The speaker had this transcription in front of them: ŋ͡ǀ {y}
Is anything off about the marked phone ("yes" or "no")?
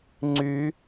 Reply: no